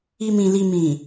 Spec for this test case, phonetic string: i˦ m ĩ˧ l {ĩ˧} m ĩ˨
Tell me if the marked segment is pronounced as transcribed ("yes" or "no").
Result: no